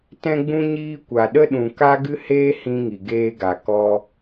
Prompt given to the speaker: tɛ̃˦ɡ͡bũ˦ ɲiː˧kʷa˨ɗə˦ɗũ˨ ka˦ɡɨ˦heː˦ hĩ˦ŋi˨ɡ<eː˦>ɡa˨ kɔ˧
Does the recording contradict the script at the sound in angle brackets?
no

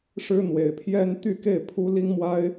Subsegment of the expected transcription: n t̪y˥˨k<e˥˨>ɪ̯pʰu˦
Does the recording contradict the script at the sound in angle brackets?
no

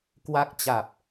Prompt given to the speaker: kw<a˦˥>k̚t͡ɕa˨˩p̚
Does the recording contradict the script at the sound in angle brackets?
no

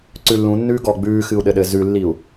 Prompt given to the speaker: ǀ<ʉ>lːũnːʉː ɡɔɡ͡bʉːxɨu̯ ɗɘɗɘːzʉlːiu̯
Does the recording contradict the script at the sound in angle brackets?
no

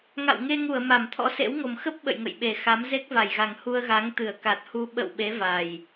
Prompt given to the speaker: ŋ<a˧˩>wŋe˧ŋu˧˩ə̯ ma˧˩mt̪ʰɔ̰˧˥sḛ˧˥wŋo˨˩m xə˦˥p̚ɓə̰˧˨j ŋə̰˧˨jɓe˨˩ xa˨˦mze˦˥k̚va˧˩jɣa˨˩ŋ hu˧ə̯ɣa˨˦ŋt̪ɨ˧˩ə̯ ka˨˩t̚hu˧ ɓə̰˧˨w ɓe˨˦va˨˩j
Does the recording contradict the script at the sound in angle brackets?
yes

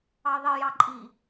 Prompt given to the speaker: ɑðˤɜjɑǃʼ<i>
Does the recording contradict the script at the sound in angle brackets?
no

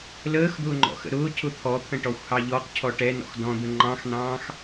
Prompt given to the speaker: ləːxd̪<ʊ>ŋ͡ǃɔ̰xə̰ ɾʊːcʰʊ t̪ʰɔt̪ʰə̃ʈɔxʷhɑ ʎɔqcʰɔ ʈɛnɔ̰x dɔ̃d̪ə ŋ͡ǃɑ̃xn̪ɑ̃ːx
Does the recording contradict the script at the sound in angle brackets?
yes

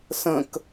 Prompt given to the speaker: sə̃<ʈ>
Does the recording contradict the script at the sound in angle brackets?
yes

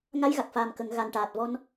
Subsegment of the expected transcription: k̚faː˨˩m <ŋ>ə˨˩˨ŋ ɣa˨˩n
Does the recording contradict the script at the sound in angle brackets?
yes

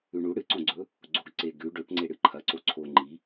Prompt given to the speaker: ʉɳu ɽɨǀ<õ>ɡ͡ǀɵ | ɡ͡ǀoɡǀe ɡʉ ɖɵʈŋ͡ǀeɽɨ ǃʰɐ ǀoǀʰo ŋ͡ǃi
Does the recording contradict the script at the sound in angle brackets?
no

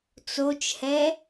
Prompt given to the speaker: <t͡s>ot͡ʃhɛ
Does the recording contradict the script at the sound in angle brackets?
no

